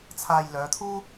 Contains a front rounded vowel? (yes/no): yes